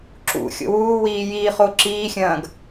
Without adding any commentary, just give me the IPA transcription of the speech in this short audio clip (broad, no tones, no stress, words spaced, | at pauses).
ǁṵ xʲo̰wuːwiː jiːχoǁiːxʲɐ̃ːɡ